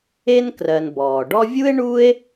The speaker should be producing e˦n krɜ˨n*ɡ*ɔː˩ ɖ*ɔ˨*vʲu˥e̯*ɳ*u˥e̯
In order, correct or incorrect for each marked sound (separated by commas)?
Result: incorrect, incorrect, correct